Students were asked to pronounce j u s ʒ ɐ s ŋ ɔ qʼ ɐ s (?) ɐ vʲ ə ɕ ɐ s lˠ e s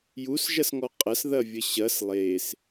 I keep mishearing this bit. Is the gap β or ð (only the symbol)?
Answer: ð